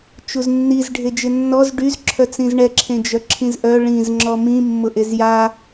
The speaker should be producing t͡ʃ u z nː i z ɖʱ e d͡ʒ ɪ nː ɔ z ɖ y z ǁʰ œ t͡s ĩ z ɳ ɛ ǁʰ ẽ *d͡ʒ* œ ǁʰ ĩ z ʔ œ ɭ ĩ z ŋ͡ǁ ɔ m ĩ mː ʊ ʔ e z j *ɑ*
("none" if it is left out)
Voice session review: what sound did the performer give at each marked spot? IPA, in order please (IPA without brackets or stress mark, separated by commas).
d͡ʒ, a